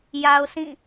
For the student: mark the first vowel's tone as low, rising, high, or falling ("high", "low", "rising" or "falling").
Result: low